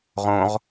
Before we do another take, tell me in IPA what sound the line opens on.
ʁ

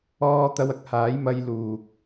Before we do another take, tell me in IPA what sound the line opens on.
ɔː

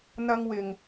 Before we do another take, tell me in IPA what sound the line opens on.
n̪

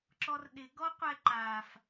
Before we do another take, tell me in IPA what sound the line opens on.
ǁ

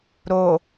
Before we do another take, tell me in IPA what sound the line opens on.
ɾ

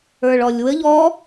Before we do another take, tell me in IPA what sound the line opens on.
ə˞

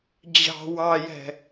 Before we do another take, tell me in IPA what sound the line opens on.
d͡ʑ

